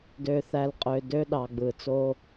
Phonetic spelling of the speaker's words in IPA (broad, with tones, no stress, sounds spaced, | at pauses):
d ø˨ θ æ˨ l qʼ ø˨ d ø˦ ɗ ɑ˨ ɡ͡b ɯː˨ t͡s o˦